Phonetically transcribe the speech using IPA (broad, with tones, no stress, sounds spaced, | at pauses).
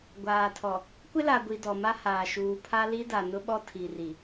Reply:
ɡʷ aː˨ tʰ ɔ˨ | kʷ ɪ˦ l a˨ ɡʷ i˨ d ɔ˨ m a˦ h aː˨ ʃ uː˨ pʰ a˦ l i˦ d a˨ n ʊ˦ ɓ ɔ˦ tʰ i˨ r i˨